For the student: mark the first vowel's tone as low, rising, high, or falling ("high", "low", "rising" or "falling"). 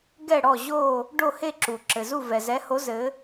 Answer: falling